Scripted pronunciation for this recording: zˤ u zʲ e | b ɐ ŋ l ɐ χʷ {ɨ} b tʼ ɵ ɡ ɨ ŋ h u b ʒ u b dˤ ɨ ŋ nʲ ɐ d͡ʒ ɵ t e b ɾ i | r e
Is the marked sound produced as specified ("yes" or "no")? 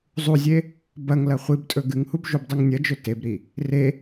yes